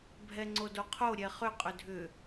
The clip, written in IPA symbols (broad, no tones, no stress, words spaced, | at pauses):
bʱɛŋ͡ǀodoqʰo ɾʲɛχʏ qʼʏdʱʏ